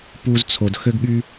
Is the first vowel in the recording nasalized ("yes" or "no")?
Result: no